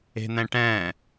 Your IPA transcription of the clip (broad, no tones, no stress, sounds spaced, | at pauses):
e̤ n̪ ɛ̃ ʈ ɛ̃ː